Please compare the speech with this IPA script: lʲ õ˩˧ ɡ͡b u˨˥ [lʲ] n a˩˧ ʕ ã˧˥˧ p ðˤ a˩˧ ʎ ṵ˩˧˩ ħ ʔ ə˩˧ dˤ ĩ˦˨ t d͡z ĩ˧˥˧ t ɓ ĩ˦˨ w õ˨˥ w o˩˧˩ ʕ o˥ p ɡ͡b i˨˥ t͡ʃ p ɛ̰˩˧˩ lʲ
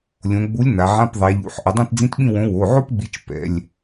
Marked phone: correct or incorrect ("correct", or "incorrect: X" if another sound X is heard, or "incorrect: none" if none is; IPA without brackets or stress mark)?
correct